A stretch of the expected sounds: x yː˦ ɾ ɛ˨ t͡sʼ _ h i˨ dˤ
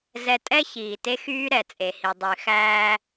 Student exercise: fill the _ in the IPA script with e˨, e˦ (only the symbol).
e˨